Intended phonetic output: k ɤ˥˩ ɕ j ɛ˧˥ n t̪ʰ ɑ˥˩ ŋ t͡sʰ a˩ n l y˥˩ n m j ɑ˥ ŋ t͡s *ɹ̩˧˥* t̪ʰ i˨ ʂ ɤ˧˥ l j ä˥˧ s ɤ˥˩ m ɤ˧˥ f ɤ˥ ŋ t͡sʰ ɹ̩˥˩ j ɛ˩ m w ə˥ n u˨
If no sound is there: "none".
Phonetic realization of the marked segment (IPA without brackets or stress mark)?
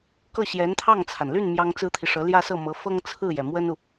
ɹ̩˥